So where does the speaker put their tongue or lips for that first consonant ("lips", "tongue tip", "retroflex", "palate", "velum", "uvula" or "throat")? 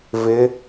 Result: lips